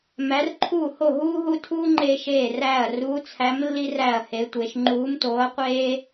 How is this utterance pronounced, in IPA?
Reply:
m æ˧˥ r ǃʰ uː˥˨ h o˥˨ ɦ uː˥ ɦ u˥ tʰ uː˥ ŋ͡ǃ eː˥ ʃ eː˥˨ r æː˥˨ ɐ̯ r uː˧˥ t͡sʰ æ˧˥ m lː i˥ r æ˥˨ ɐ̯ h e˧˥ tʷ e˧˥ ʃ ŋ͡ǃ uː˧˥ m t oː˧˥ ɐ̯ qʷ eː˥

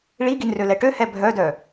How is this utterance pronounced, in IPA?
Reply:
ɭ i ɡ i n r ø l ɛ ʈ ø h ɛ bʱ œ d œ

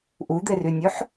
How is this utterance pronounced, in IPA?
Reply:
ʔ u d̪ e r y nʲ ɵ ħ

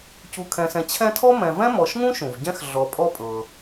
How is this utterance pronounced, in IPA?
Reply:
c u˨ kʰ ɛ̃˨ s ɛ̃˨ t͡ɕʰ ɛ̃˦ tʰ ɔ˥ m ɛ̃˨ v ɛ̃˥ m ɔ˨ ʃ ŋ ũ˥ ʃ ũ˩ v ɟ ɛ̃˦ x ɮ ɔ˨ pʼ ɔ˦ pʼ ɤ˩

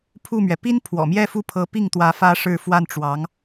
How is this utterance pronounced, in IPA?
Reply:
pʰ u˥˩ m ɥ ɛ˩ p i˥ n pʰ w ɔ̰˨˩ m j ɛ˥˧ f u˥˩ pʰ ɤ˧˥ p i˥˩ ŋ t̪ w ä˧˥ f ä˥ ʂ ɻ̩˥˧ f w a˥˩ n ʈ͡ʂ w ɑ˧˥ ŋ

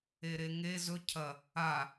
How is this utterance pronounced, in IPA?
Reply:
e ɾ e ŋ e z ɵ cʰ ɐ | a

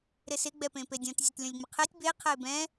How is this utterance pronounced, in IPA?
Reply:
ɾ ɪ s ɪ ɡ͡b ɛ p ẽ p e dʲ ɔ̃ t zʲ e t lʲ ɔ̃ lʲ ŋ͡m ɪ qʰ e tʲ b e qʰ ɛ ɪ̯ b ɛ̃

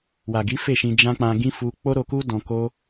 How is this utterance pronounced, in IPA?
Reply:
w a˨ ɡ i˨˦ f e˦˨ ʃ ĩ˧ d͡ʒ ã˦ k͡p ã˧ ɡ ĩ˦ f u˦ k͡p o˦ ɾ o˧ k u˦ d ɔ̃˧ k o˦

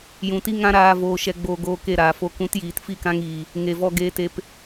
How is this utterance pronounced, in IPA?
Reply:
j ũ˨ t i˦ ŋ ã˦ ɾ aː˧ v oː˨ ʃ ɛ˨ ɡ͡b oː˨ ɡ oː˨ k e˦˨ ɾ aː˨ f o˧ k ũ˨˦ t j iː˨ t f i˦˨ k ã˧ ŋ iː˨ | ŋ e˨ v ɔ˧ ɡ eː˧ t e˧ p

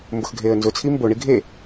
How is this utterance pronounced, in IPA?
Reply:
m b ʊ x ɡʱ eː ə̯ n z ʊ t͡sʰ i m b o ɳ i ɡʱ e

